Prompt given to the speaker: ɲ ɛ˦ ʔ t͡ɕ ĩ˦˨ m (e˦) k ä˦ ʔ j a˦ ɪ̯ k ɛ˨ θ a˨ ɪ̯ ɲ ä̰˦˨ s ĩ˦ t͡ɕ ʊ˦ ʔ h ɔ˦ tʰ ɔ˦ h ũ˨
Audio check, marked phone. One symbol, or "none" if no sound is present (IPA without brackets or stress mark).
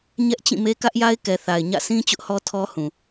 e˦